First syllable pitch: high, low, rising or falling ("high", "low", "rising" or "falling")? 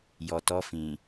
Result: low